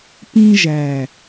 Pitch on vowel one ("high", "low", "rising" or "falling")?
high